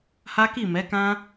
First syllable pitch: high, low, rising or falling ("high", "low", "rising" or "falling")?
high